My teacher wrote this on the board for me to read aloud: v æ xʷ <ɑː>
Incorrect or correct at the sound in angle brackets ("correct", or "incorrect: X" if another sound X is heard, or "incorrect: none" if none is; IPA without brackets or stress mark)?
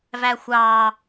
correct